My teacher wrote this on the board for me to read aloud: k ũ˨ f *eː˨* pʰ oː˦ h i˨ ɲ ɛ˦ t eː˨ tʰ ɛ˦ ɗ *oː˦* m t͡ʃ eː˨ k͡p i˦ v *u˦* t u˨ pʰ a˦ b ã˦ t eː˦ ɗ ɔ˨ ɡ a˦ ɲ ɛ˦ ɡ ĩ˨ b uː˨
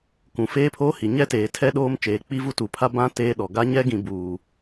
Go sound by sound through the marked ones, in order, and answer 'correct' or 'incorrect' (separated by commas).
incorrect, correct, correct